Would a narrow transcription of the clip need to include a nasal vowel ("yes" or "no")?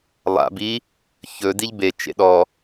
no